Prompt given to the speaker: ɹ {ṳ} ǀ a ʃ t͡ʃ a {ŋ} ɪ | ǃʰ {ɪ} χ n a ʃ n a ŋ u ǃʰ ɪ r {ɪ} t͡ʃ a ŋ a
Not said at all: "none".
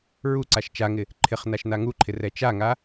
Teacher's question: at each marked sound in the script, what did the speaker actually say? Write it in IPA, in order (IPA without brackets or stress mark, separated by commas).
u, ŋ, ɪ, ɛ